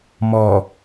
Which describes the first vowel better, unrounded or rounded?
rounded